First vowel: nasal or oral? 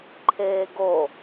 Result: oral